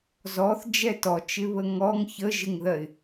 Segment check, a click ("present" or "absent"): absent